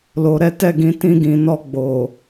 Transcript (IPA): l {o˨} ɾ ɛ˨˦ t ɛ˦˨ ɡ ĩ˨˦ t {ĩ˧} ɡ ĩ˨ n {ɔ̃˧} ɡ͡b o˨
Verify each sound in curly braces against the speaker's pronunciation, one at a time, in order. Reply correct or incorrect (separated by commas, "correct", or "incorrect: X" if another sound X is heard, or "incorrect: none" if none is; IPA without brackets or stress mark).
correct, correct, incorrect: ɔ˧